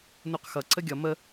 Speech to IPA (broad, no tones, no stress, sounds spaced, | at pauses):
n u q x ʌ ǀ ə ɡʲ ʌ m ə